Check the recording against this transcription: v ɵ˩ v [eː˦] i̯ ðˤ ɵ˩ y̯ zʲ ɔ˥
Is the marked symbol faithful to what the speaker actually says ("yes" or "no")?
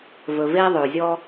no